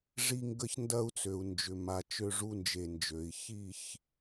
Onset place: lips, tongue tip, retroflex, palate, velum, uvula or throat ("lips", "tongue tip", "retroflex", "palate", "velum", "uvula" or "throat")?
retroflex